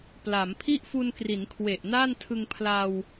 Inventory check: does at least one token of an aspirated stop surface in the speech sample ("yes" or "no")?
yes